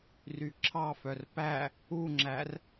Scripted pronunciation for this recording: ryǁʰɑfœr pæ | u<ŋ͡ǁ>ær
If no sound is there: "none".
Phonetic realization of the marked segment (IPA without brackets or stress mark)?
ŋ͡ǁ